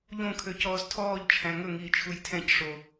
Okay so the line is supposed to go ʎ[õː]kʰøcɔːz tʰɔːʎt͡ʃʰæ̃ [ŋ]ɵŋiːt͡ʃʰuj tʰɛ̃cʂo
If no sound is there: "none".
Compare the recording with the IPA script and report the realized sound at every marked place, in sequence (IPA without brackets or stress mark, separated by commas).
õ, ŋ